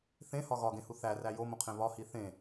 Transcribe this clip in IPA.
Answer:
θ ẽ h ɒ ɣ ɒ ɡ ẽ h u θ æ r æ j o m õ qʰ ẽ β ɒ h i θ ẽ

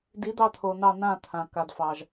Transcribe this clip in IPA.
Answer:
d i˨˦ d̪ ɑ˧ t̪ʰ o˨ n̪ ɑ˧ n̪ ã˦˨ t̪ʰ ã˨ k a˨ d f ɑ˨ ʒ

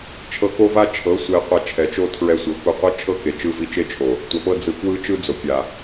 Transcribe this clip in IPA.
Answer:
t͡ʃʰ ɤ˧ k o˦ v a˦ t͡ʃʰ ɤ˨˦ sʷ e˧ qʷ a˧ t͡ʃʰ ɛ˨ t͡ʃ o˦ tʰ ɹ ɛ˧ sʷ ɤ˨ k u˧ qʷ ɤ˦ t͡ʃʰ ɤ˦ k e˨ t͡ʃ ɯ˧ v i˧ t͡ʃ e˦ t͡ʃʰ o˨ | tʷ a˨ p ɤ˦ d͡z ɯ˧ k w ɯ˦ t͡ʃ ɯ˦ d͡z o˨ pʲ a˨

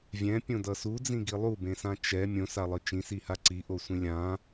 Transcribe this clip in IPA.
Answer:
vʲ ɛ̃ pʲ õ d ʌ s u d͡z ĩ ɡ i lˠ u b ẽ s ã t͡ʃ ɛ mʲ õ s a lˠ ɯ t͡ʃ ĩ s i h a ǀ i ʔ o sʷ ĩ lʲ ã

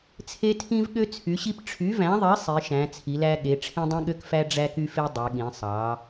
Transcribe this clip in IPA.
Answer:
t͡sʰ e˧ tʰ ĩ˧ v ɠ ø˧ t͡sʰ y˩˧ ɕ i˧ p ʈ͡ʂʰ y˩˧ v æ̃˩˧ ðˤ i˩˧ sˤ i˩˧ ʃ æ̃˩˧ t͡sʰ i˩˧ l æ˧ ɠ e˩˧ ʈ͡ʂʰ ĩ˧ dˤ ĩ˧ ɠ ø˧ k f æ˧ ɖ͡ʐ æ˧ k y˧ f e˧ dˤ e˩˧ ɠ ĩ˩˧ sˤ ɑ˩˧

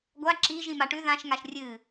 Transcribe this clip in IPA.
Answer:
ɡʷ a ǁ i ʒ ĩ m a ʈ ʉ ð ã ʃ ŋ a ʃ rʲ ɨ

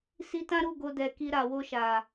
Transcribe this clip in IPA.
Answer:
s i˧ t ã˦ ɾ u˦˨ ɡ o˧ d ɛ˨ k i˧ ɾ a˨ w o˧ ʃ a˨

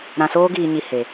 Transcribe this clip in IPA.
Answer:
ɾ ã˧ s oː˦ ɡ iː˧ ɲ i˧ h e˧

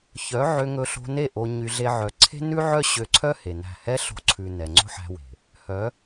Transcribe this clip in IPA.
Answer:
ç œ˨˦ ʕ ø˧ ŋ ɵ˧ ɬ o̤˧ n e˦˨ ʔ o˧ ɲ y˧ ɮ e˦ ʕ œ˧ ǀʰ e̤˦ n ʉ˦ ʕ œ˦ ɕ ø˧ ǀʰ œ˦ h e˨ n æ̤˦˨ h ɛ˦ ɬ o̤˧ ǀʰ ʉ˨ n ɛ˨ ŋ͡ǀ o̤˦ ħ æ̤˧ w e̤˨ | h œ˨˦

